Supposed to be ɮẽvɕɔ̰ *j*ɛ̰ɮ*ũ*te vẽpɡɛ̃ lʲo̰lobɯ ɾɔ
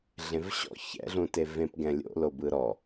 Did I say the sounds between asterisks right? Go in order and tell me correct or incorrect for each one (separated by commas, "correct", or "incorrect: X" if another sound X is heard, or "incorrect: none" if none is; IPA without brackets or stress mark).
incorrect: ç, correct